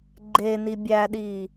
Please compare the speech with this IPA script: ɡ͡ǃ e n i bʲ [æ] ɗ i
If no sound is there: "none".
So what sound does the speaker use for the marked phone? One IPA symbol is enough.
æ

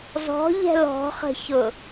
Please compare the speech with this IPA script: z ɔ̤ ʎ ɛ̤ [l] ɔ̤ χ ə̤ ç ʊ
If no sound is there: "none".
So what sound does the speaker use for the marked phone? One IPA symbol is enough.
l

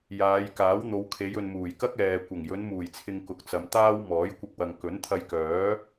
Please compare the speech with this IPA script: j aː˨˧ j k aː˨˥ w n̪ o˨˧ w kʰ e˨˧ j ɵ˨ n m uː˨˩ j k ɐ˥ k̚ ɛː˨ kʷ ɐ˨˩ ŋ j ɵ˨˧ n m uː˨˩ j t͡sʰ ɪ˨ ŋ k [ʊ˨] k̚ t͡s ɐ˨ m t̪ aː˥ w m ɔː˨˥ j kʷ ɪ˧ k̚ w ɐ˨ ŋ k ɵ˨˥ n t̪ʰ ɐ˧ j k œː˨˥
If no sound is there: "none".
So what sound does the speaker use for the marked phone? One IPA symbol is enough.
ʊ˨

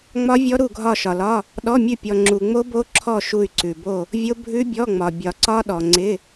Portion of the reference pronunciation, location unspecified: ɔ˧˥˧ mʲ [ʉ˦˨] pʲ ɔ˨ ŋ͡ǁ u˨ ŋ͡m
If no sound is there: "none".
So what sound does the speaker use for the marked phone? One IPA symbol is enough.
ʉ˦˨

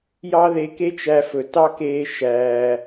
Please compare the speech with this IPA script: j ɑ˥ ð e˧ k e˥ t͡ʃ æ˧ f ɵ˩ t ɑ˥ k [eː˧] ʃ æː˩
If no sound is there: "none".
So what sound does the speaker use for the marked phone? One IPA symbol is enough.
eː˧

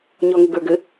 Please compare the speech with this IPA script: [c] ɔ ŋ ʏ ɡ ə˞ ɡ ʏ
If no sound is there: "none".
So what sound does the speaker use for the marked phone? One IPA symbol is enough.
ɲ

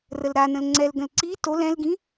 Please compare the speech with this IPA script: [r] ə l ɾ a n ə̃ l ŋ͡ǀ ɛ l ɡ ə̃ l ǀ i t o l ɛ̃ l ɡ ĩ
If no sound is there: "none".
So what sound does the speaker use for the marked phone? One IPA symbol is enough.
r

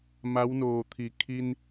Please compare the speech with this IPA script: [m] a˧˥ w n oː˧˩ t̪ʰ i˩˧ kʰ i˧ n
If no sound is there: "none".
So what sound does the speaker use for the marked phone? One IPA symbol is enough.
m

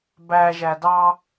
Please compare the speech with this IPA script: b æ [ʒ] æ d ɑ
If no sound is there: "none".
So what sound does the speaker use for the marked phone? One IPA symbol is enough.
ʒ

